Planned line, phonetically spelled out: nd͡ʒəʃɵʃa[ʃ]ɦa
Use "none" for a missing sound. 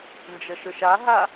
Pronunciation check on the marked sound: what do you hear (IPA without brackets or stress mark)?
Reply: none